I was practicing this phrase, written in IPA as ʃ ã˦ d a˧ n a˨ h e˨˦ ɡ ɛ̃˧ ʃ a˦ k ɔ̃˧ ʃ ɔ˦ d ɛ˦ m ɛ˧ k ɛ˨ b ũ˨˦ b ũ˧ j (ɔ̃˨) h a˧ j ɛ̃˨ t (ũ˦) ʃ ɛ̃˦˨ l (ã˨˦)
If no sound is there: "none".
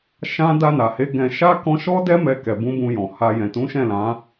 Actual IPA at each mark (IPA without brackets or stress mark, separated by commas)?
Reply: ɔ̃˨, ũ˨˦, ã˨˦